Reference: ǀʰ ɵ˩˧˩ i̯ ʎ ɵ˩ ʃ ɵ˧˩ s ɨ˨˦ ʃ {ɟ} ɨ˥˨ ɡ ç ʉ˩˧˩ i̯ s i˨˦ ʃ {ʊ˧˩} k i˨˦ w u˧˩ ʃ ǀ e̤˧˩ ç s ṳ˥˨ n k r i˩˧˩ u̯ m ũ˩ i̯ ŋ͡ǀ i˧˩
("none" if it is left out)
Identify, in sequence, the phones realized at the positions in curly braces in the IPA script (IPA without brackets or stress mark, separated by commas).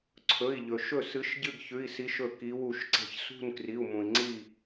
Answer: ɟ, ɵ˧˩